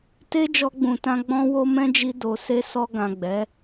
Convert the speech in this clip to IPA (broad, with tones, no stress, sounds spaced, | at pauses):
t e˦ d͡ʒ ɔ˧ ɡ͡b ũ˨ t ã˧ ɡ͡b ɔ̃˧ w o˧ m ɛ̃˦ d͡ʒ i˧ d o˨ s e˧ s ɔ˧ ɡ ã˨ ɡ͡b ɛ˨˦